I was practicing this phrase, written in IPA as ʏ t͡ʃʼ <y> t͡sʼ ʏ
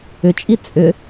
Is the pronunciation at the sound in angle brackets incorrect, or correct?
incorrect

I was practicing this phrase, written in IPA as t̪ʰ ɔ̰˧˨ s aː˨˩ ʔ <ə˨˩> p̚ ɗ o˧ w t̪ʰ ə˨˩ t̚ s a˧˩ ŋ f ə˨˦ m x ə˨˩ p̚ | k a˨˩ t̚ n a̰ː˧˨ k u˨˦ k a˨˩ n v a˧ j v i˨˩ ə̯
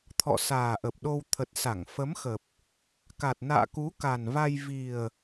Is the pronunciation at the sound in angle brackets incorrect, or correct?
correct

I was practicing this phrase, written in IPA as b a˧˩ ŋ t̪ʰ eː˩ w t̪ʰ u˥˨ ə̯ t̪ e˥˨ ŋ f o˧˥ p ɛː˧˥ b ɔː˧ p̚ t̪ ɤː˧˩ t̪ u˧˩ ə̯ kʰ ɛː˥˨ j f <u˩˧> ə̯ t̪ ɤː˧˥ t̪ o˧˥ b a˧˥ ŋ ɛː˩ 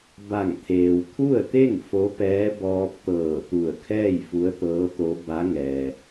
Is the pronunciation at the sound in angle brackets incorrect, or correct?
incorrect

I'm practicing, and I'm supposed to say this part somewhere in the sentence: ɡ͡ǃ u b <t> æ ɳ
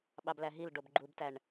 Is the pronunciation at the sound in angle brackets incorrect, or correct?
correct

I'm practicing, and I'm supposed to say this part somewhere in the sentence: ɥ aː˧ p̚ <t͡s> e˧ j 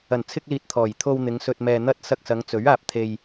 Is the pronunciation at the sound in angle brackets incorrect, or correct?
incorrect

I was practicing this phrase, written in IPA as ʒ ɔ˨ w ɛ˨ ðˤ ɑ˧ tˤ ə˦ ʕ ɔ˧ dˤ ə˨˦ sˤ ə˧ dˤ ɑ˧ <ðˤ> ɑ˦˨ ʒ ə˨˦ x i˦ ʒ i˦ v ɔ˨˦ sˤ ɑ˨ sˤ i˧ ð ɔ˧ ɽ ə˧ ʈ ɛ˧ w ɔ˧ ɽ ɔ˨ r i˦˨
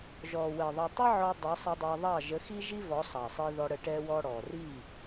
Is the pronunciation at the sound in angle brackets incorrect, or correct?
correct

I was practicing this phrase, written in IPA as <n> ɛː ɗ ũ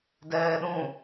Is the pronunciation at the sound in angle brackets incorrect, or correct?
incorrect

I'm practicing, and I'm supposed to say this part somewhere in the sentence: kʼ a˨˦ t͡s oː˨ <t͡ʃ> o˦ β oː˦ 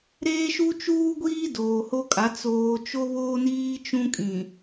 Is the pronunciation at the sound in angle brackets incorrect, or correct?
correct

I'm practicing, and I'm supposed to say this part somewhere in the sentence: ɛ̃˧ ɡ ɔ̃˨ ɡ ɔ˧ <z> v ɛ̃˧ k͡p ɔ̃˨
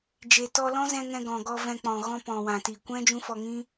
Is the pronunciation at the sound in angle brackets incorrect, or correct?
incorrect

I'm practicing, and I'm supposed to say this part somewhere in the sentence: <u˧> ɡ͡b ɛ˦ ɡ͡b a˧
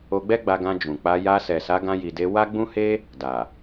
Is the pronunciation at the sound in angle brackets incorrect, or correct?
incorrect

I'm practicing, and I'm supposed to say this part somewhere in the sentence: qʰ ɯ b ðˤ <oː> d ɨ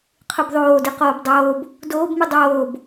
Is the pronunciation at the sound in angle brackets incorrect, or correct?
correct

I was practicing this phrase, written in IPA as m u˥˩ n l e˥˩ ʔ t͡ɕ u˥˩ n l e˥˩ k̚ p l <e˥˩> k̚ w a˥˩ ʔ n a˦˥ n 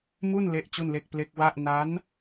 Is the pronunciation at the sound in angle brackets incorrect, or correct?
incorrect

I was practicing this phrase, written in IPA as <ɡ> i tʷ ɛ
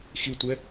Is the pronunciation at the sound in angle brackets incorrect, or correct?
incorrect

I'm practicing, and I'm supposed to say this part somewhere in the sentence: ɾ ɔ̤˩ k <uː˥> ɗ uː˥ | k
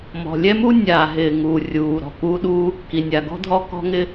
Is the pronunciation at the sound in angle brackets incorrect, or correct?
correct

